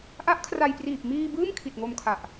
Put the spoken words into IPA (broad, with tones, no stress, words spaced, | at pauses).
ʔa˦˥ʔkʰra˧jpriː˨˩p̚ miː˧ bɯː˥˩mkʰi˨˩t̚ŋo˧mkʰa˨˩ʔ